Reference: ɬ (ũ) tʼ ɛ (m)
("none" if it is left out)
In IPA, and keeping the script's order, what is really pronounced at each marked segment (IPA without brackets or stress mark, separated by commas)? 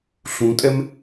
ũ, m